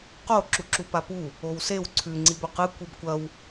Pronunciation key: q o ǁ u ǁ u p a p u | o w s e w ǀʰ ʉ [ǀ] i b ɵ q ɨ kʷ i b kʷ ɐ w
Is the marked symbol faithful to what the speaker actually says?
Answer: no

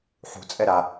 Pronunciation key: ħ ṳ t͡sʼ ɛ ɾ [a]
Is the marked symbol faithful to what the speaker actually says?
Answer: yes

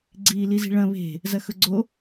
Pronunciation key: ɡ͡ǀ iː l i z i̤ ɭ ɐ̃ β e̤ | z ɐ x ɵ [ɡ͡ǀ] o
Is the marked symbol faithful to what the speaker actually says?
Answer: yes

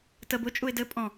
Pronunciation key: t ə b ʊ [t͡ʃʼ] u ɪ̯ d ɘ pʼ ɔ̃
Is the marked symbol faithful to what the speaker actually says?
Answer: yes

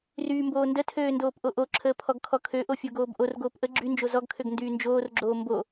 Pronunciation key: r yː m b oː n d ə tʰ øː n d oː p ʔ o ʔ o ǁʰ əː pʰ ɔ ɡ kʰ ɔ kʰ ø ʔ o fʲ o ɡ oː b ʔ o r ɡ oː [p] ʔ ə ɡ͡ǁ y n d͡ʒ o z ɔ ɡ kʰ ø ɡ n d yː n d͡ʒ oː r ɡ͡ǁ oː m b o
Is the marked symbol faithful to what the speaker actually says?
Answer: yes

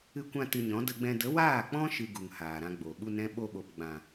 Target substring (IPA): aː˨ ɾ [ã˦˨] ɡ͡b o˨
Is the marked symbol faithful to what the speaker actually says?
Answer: no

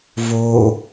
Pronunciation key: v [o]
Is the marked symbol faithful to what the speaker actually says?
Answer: yes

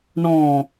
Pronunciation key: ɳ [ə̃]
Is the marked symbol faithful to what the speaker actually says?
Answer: no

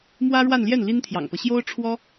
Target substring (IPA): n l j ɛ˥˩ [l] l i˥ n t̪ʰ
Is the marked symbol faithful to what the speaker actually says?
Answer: no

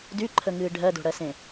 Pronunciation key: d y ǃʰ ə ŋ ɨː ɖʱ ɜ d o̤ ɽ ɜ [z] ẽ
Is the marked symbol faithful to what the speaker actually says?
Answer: no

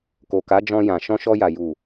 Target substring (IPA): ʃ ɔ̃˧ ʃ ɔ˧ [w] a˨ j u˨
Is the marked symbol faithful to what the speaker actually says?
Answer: no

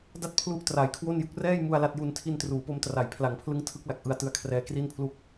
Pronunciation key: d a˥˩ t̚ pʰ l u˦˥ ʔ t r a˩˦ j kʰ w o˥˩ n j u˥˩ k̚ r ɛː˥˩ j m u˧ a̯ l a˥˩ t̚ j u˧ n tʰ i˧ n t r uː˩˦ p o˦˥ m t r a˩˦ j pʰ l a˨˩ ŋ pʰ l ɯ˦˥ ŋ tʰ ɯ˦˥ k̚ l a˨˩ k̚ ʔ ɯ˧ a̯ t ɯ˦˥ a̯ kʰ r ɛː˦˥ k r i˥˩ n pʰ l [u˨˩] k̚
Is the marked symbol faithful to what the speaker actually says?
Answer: no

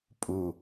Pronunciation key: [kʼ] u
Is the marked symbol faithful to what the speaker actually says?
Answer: no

